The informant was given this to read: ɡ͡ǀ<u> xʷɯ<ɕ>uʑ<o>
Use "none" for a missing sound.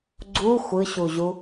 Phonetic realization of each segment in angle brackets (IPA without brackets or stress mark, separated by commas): u, ɕ, u